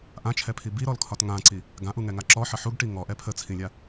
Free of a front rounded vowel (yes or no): yes